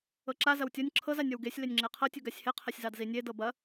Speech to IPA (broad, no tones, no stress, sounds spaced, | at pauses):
ɤ ǁ a z ɐ w tʲ ɔ nʲ ǁʰ ɤ z a nʲ ɔ w ɡ e sʲ l e nʲ ŋ͡ǁ e qʰ ɤ tʲ u ɡ a sʲ h e qʰ a sʲ z ɑ d z i nʲ e d ɤ b ɐ